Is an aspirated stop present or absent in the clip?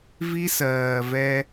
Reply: absent